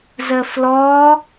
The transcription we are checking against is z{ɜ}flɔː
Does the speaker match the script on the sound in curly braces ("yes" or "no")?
yes